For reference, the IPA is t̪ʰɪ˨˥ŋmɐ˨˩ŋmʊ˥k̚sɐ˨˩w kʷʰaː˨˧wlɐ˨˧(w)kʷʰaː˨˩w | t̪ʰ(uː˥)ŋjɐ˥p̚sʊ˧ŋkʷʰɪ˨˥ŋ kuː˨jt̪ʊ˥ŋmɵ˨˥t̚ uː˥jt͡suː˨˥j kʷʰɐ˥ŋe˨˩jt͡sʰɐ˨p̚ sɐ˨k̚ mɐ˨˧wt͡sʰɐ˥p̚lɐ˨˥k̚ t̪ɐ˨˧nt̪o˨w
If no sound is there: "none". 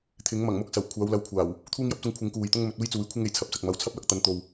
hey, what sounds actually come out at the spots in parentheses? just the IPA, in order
w, uː˥

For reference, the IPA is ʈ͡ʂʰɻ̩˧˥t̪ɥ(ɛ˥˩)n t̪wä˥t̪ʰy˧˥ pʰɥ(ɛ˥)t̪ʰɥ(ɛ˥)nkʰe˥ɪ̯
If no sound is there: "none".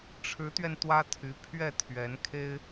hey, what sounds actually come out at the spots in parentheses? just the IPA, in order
ɛ˧, ɛ˥˩, ɛ˧˥

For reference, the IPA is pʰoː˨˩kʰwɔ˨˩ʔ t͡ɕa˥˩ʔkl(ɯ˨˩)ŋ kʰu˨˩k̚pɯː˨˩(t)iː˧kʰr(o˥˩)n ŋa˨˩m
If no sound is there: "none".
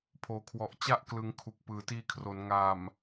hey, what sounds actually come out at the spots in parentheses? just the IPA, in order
ɯ˩˦, t, o˩˦

